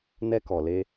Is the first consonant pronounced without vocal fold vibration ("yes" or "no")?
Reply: no